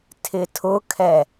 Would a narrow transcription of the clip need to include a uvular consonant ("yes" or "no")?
no